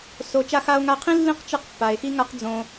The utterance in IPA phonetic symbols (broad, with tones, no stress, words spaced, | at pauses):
so˨ t͡ʃa˧xa˧o̯ŋa˧qʰĩ˦ lːĩ˦qt͡ʃɯ˧q pːa˨e̯xi˦ŋa˦q d͡zõ˧